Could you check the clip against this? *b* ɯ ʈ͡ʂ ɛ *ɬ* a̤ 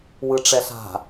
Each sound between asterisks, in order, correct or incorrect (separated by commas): incorrect, correct